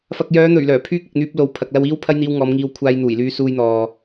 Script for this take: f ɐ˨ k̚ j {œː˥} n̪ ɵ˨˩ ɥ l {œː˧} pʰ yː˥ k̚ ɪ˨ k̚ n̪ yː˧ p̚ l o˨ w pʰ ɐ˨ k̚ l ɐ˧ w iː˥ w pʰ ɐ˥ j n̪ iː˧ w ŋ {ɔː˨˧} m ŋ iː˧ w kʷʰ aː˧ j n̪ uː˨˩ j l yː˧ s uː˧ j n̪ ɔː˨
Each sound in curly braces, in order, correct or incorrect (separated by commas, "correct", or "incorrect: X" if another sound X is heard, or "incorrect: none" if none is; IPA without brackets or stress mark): incorrect: œː˨˧, incorrect: œː˨˩, correct